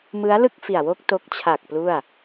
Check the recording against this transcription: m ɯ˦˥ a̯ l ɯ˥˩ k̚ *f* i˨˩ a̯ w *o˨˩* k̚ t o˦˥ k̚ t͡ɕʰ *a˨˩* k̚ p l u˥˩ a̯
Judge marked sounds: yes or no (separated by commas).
yes, no, yes